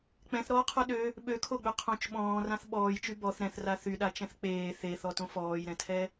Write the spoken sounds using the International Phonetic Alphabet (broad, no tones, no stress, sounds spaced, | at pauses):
k͡p ɛ̃ θ ɾ ɔː qʰ o ɗ ø | ɓ ø kʰ o ɡ͡b ø qʰ õ t͡ʃ ɓ ɔ̃ː r ã θ ɓ ɔː j t͡ʃ y b ɔ θ ɾ ɛ̃ θ r a θ y ɗ a t͡ʃ ɛ̃ θ k͡p eː θ e θ ɔ t õ f ɔː j ɾ ɛ̃ tʰ ɛ